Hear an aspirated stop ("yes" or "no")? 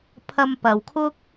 yes